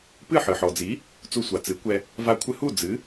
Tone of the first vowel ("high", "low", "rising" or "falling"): falling